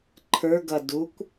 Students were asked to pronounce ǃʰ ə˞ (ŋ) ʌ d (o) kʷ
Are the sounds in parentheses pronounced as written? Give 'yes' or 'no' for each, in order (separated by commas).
no, no